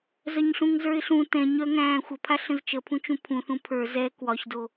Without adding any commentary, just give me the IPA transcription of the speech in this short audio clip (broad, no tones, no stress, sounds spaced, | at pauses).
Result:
z œ ɲ ɬ ũ ŋ z ə˞ ɪ̯ ɬ ũ t ɛ̃ ɲ œ ŋ æ̃ː xʷ ə pʰ a ɬ ə̃ z t͡ʃ ə pʰ ũ t͡ʃ ũ pʰ ũ θ ũ pʰ ə˞ z ɛ k w ɒ ç d o